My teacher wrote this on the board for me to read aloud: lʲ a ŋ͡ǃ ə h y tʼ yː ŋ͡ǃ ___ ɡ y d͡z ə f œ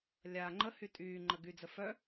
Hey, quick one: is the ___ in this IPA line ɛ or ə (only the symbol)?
ə